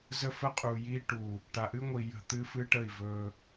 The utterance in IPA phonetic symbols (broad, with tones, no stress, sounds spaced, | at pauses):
z ə˦ f ə˦ qʼ u˨ j i˦ ʈ u˨ | ʈ a˨ ʔ ɨ˦ ŋʷ i˨ j ə̤˦˨ t̪ ɨ˦ f ɨ˦ ʈ ə˦˨ i̯ v ɵ˦